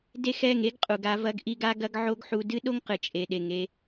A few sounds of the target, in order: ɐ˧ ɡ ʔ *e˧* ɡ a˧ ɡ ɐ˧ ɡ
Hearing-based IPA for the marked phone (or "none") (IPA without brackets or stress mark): i˧